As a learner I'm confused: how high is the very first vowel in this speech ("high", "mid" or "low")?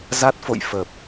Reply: low